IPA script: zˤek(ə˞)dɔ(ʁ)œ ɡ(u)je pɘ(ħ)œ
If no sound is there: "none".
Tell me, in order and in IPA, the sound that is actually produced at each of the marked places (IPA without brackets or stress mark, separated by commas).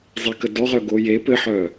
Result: ə, ʁ, o, ħ